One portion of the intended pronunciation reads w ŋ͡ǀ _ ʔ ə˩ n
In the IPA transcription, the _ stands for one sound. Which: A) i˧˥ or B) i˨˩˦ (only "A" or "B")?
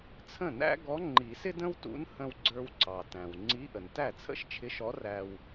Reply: A